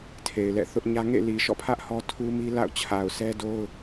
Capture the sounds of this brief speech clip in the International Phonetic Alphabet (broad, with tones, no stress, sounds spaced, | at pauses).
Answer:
tʰ e˨ ɪ̯ l ɛ̰˦˨ θ ʊ˦ ʔ ɲ ä˦ ŋ ḛ˦˨ l i˨ ʃ ɔ̰˦˨ pʰ ä˦ ʔ h ɔ˦ tʰ u˦ m i˦ l a̰˦˨ ʊ̯ t͡ɕʰ a˨ ʊ̯ sʰ ɛ˦ d o˦ ʊ̯